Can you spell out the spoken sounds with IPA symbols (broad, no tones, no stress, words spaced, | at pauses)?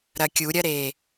ɾɐkʲuɾʲɐɾe